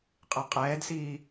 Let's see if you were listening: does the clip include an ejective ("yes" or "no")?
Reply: yes